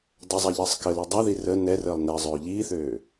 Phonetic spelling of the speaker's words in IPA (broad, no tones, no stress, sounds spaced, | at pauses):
dˤ ʏ zˤ a ʎ əː sˤ k ə l i dˤ a ð i r ə n ɛ r əː lˠ n ɛ zˤ øː ʎ iː θ øː